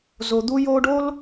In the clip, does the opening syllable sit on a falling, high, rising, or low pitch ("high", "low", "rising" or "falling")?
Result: low